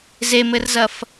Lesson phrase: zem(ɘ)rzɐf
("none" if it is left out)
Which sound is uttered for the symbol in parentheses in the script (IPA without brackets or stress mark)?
ɘ